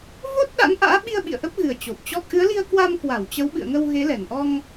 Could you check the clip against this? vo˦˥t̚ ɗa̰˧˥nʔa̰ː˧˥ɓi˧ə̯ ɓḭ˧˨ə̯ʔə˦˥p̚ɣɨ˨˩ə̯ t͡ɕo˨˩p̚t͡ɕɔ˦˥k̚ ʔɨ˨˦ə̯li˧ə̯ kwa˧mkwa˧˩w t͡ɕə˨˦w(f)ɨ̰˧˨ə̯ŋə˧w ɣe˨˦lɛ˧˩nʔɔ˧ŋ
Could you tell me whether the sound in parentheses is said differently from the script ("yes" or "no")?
yes